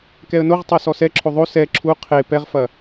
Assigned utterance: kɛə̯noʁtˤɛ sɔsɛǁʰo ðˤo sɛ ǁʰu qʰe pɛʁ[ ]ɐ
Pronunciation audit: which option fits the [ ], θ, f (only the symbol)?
f